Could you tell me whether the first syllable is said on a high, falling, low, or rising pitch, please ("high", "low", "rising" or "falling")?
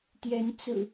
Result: rising